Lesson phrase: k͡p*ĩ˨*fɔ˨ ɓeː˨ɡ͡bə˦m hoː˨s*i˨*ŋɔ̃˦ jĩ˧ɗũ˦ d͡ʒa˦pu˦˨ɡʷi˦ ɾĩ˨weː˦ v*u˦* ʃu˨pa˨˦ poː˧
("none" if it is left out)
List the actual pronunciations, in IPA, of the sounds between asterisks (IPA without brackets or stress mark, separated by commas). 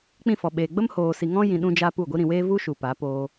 ĩ˦˨, i˨, u˦